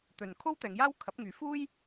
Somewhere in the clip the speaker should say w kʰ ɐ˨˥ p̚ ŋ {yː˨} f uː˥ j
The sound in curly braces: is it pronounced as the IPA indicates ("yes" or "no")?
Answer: no